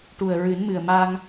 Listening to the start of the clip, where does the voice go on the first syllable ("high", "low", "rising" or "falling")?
low